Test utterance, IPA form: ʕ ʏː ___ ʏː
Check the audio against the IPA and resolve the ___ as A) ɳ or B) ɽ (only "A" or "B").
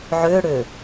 B